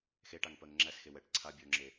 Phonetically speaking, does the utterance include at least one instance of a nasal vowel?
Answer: no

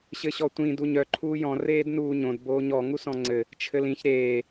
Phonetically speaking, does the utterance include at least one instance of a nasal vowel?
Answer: yes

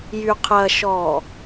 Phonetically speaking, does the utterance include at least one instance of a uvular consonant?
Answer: yes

